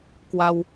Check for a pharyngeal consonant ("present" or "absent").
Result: absent